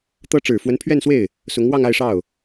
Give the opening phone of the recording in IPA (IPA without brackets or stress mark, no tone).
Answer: t̪